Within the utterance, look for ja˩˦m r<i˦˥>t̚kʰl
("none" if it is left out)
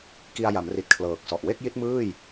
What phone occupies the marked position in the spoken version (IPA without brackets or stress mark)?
i˨˩